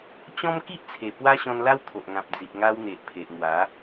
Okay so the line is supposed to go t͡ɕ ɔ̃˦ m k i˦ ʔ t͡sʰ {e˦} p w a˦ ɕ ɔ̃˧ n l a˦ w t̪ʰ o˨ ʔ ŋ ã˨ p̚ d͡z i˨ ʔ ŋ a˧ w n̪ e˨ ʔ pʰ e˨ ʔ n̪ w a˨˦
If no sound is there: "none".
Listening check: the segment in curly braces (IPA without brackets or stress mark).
e˨˩